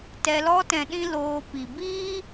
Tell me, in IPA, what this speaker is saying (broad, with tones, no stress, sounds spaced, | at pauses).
t ɛ˧ l ɔ˧ t ɛ̃˨ ɗ ĩ˦ l oː˧ p i˨ b iː˦